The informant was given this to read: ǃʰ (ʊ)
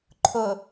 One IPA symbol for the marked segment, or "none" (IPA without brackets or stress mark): ʊ